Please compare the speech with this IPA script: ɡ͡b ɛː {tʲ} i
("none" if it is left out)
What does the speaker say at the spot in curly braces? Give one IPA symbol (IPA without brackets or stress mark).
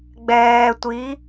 tʷ